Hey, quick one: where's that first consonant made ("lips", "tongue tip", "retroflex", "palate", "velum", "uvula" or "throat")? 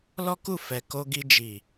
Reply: tongue tip